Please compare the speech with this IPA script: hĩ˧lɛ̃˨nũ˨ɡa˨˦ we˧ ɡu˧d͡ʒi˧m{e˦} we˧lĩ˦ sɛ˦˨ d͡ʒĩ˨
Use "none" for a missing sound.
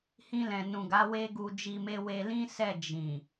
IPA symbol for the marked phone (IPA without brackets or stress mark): e˦